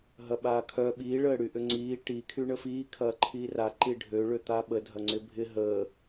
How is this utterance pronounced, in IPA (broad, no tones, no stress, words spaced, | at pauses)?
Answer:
ɦɐɓaːkʰœ ɓiː ɭəːɽyʔʏŋ͡ǀiː ʈi kʰyɳəfiː kʰɐːǃʰiːra ǃiɖʱø ɭøt̪aɓə dʱɐŋ͡ǀɪbʱɪ ɦəː